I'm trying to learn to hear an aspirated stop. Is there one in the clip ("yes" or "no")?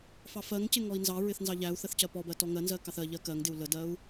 no